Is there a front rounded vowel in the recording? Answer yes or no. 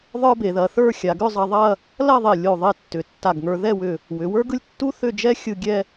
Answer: yes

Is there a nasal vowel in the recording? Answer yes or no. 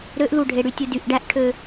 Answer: no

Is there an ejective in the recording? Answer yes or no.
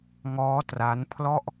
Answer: no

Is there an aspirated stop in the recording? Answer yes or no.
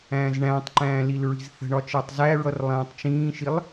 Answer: no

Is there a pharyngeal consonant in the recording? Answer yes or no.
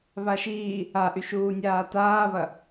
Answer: no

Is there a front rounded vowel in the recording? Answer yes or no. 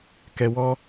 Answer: no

